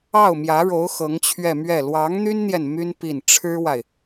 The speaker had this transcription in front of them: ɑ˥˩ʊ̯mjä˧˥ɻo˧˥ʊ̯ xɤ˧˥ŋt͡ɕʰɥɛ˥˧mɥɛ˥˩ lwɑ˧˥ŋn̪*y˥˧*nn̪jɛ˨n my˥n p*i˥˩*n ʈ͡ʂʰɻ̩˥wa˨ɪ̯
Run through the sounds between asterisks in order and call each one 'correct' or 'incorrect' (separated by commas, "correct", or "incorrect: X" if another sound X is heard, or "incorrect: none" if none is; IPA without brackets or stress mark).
incorrect: y˥, correct